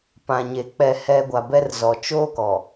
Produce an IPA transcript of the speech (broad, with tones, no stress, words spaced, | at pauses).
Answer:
pã˨ɲe˨ k͡pɛ˨hɛ˨ ɡʷa˨bɛ˦rzɔ˨ t͡ʃoː˦kɔ˨